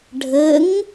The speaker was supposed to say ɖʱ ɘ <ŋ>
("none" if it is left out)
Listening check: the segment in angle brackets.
ŋ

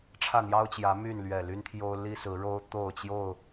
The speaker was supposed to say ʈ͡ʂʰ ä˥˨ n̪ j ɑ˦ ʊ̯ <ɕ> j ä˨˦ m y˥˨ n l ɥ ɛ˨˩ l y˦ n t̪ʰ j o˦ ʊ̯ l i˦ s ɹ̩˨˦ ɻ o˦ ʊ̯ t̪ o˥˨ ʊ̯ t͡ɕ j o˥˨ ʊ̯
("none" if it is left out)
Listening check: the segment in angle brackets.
t͡ɕ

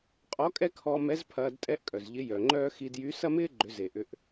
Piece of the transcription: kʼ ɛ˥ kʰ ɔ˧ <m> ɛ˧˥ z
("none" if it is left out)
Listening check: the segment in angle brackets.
m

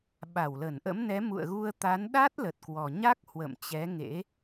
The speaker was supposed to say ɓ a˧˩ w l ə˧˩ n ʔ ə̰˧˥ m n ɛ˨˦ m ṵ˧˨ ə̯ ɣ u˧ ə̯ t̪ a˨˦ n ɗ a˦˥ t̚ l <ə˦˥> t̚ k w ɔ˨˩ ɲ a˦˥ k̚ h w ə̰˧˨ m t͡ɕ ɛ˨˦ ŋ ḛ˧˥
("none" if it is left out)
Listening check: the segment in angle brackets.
ə˨˩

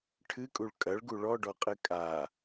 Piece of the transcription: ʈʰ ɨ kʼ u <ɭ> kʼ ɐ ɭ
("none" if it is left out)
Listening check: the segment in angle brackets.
ɭ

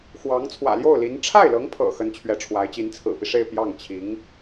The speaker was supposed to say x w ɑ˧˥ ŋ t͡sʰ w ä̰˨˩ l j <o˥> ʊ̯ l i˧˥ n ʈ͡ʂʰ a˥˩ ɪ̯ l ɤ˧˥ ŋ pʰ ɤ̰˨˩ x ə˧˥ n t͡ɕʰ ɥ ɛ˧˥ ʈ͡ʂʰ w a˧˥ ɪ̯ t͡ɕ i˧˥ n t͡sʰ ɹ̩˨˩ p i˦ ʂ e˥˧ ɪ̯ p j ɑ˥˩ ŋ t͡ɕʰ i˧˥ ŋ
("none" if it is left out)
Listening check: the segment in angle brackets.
o˥˩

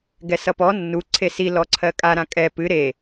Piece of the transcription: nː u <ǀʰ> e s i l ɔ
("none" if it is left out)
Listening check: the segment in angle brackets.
ǀʰ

